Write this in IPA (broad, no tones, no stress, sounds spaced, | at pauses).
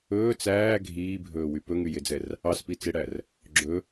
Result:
ɵː t͡s æː ɡʱ iː bʱ ɵː w y p ɵ ŋ y j e d͡z ɛ r | ɑ s p i t͡s e ɽ æ r | ɡ͡ǁ ɵ